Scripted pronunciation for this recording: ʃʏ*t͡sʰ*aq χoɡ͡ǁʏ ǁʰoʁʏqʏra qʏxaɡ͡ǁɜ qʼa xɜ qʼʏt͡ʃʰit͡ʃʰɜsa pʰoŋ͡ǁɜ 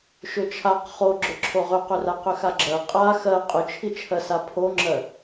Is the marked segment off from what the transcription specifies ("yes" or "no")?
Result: yes